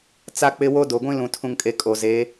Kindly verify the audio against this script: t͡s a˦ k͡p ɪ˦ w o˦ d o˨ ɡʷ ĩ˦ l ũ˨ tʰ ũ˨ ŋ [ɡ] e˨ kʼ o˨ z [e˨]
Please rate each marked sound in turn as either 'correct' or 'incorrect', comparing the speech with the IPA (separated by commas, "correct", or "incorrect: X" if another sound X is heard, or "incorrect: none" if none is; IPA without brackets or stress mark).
incorrect: kʼ, incorrect: e˨˦